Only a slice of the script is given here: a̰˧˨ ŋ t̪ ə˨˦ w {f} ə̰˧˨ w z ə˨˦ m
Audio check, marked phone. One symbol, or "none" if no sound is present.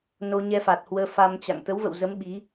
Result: v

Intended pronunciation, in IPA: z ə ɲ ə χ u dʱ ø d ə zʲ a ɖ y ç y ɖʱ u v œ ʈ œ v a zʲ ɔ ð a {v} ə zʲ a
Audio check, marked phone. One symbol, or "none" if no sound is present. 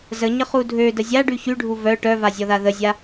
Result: ð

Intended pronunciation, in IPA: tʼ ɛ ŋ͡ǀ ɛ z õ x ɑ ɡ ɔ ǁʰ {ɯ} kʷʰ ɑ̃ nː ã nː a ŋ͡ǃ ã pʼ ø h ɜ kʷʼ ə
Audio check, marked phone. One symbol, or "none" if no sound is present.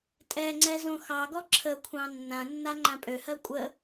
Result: ə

